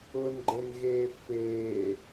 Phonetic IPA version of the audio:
ʊnɡ͡ǃenɣeː feː

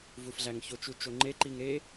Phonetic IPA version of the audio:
vufɮæŋço t͡ʃut͡ʃoŋ͡ǃe ǃiŋɾe

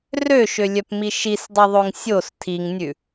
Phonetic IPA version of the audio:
røʃølʲœpmi ʃisdˤiðˤoŋ sʲos tʰiŋnʲʉ

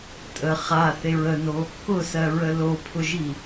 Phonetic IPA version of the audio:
tʼə χaθeɹ əno | kʊsɜɹə lopʰʊʒi

